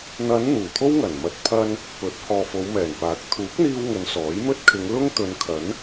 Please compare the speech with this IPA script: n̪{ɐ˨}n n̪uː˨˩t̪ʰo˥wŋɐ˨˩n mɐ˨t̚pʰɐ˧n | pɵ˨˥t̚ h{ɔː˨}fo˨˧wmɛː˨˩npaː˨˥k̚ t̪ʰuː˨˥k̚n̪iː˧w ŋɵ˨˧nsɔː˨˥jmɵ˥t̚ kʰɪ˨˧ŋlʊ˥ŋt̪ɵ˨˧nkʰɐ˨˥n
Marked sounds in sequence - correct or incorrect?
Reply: incorrect: ɐ˨˧, correct

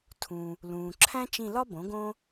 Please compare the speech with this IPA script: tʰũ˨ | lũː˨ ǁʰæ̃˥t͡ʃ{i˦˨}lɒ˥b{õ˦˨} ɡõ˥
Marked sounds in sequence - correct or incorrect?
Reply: incorrect: ĩ˦˨, incorrect: õ˩˥

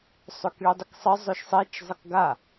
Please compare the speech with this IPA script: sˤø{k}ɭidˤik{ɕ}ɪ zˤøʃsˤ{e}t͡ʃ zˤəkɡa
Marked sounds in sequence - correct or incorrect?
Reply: correct, incorrect: sˤ, correct

